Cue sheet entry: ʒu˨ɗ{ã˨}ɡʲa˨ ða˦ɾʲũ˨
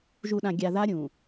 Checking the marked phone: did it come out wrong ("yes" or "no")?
no